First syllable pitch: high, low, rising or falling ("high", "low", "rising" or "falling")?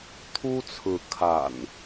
high